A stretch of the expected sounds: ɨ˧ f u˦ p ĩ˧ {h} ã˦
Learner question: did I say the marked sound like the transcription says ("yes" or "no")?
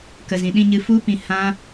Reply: yes